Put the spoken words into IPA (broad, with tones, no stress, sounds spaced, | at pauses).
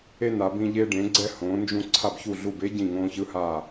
e˧ n a˩˧ b ĩ˧ ʎ e˧ ɖ ẽ˩˧ ɡ͡ǀ ɛ˧ h õː˩˧ n d͡ʒ ũ˧˩ ǀʰ a˧˩ b ç u˧˩ ɮ u˧˩ b e˥ ɟ ĩ˧˩ ŋ õː˧ ç ɯ˥˧ h a˧˩